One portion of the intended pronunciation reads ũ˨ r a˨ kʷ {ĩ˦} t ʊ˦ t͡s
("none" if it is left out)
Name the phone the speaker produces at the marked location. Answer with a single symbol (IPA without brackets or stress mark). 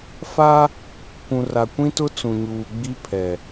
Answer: ĩ˦